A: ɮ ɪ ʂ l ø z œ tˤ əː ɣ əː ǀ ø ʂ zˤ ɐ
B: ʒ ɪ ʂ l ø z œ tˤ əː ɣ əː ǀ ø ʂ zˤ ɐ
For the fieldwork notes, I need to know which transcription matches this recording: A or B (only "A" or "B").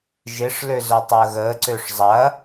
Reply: B